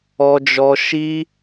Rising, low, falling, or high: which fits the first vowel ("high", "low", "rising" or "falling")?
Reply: high